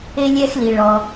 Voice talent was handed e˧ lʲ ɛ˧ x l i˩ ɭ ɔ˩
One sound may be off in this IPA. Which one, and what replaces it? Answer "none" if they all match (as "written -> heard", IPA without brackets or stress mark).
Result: none